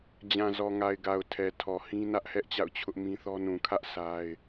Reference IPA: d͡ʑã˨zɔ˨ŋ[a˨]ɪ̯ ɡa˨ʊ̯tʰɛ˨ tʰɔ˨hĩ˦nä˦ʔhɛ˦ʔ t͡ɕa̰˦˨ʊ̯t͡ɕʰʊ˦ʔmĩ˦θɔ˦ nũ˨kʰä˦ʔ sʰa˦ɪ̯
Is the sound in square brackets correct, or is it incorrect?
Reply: correct